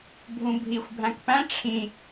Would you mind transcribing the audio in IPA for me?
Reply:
bʱ ũ bʱ i xʷ bʱ æ̃ k p æ̃ ʈ͡ʂʰ ĩ

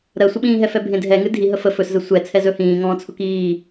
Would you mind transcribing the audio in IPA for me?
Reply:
ɾ ɜ sʷ ə ɓ ĩː ɦ ɛ f ɛ bʱ ẽ dʱ ɛ ŋ ɨ dʱ i ɦ ə f ə f ɵ s z ə sʷ ɛ t͡sʰ ɛ z ɵ h ĩː ŋ ɔ̃ː t͡sʰ ʊ k iː

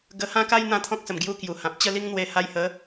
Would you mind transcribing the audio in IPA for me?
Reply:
ɡ ə˧ h ã˦ k a˦ j n̪ ã˦ t̪ʰ ɔ̃˦ k̚ s ə˨˩ m ɡ j u˧ k j u˨˩ h ã˨ p̚ t͡ɕ ə˥˧ l i˦ ŋ n̪ w e˧ h a˧ j h ə˨˦

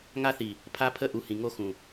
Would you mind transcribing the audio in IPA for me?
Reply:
ŋ a˦ θ i˨ | pʰ a˦ pʰ ə˦ ʔ u˨ h ĩ˨ ŋ o˦ x ũ˨

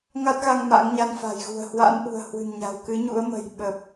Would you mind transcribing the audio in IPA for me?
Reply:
ŋ a˦˥ t̚ ɣ a˧ ŋ m a̰˧˥ ŋ ɲ a˧ n f a̤˨˩ j ɣ ṳ˨˩ ə̯ h w a̰˧˥ n ʔ ṳ˨˩ ə̯ h w ɨ̤˨˩ n ɲ a̤˨˩ w k ɨ˨˦ ɲ ṵ˧˥ ə̯ m ə̤˨˩ j ɓ ə˨˩ p̚

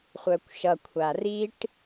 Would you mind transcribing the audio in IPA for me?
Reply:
χʷ œ kʷ ʃ ʌ kʷʰ a r i ʈ

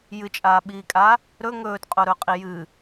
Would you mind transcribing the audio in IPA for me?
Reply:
j ɨ t͡ʃʼ aː ɓ iː kʼ a | ɾ ɵ ŋ ɵː t qʼ o ɾ ɵ qʼ i j ɨ

